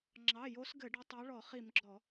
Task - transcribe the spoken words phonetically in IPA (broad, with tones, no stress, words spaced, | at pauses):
ŋ͡ǁɑ˩˧˩jo˨˦s ɡɘ˧˩˧ɖɘ˨˦ tˤɑ˨˦ɭɔ˧˩˧ χi˧˩˧mɡ͡ǁɔ˧˩˧